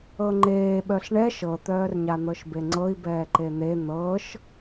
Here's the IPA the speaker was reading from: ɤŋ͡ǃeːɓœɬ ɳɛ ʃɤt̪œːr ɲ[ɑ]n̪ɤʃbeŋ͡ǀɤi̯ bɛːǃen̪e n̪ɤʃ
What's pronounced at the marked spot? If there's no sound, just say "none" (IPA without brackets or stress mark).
a